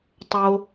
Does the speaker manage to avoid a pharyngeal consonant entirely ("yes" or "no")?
yes